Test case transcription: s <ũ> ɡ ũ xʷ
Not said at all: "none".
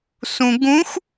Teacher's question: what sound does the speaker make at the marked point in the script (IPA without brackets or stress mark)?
ũ